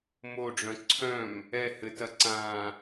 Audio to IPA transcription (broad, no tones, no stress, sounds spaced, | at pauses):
m o ɖ͡ʐ œ̃ ǀʰ œ̃ m | ɛ h ɘ t ɐ ǀ ãː